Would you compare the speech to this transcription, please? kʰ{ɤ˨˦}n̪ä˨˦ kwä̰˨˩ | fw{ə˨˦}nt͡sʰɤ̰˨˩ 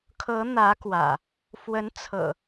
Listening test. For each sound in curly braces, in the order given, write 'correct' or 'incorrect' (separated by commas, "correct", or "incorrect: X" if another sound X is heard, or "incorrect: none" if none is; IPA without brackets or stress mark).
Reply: correct, correct